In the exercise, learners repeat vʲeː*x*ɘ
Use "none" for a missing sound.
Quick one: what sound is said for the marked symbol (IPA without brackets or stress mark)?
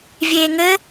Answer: ŋ